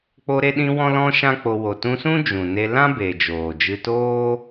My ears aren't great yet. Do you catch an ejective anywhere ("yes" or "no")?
no